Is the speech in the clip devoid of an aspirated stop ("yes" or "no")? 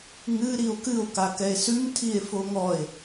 no